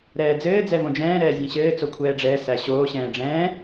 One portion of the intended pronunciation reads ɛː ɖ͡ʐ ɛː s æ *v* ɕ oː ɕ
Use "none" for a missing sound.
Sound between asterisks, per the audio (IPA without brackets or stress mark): none